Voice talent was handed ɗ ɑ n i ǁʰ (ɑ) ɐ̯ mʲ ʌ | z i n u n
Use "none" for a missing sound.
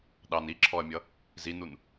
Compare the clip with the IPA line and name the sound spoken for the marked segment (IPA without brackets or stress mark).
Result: ɔ